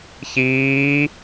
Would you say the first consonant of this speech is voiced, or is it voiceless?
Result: voiceless